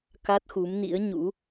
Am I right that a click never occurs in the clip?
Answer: yes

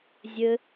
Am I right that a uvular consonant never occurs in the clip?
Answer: yes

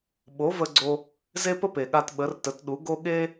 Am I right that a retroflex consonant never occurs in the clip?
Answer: yes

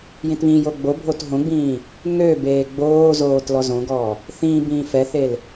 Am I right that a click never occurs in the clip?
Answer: yes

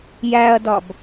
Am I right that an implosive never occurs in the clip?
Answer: yes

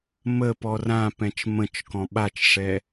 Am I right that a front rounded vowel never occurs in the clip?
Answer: yes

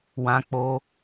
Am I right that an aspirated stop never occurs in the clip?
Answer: yes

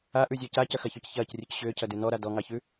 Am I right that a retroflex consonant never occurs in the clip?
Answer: yes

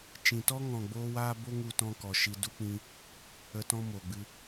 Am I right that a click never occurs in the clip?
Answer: yes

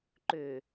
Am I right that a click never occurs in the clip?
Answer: no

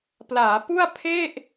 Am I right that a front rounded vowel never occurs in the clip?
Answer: yes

